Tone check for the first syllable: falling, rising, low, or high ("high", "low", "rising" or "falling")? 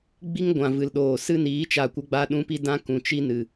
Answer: high